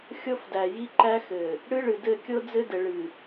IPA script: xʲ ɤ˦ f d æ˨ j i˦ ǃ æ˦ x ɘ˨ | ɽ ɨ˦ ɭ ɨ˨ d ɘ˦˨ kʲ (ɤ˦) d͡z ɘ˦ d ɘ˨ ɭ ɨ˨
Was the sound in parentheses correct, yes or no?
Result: yes